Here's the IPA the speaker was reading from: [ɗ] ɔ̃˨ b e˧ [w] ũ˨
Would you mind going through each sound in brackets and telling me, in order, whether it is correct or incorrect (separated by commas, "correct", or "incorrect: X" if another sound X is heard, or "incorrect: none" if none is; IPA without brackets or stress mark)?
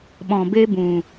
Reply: incorrect: ɓ, incorrect: b